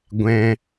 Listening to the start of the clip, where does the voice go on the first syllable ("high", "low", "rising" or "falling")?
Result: high